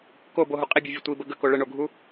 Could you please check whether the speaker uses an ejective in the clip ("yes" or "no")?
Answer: yes